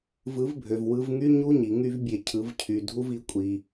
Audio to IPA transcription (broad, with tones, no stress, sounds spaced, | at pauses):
v ɯ˨˦ v bʱ ø˨ v w ɯ˧ v ŋ y˦ ɲ u˦ ɲ i˨ ŋ y˦ v bʲ e˧ cʰ ɯ˨˦ v cʰ y˨ dʱ u˦ v i˧ kʷʼ i˨